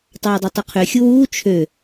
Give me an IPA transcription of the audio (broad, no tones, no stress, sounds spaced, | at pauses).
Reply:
tˤ ɑː dˤ ɑ tˤ y qʰ ø xʲ u w uː t͡ʃʰ ø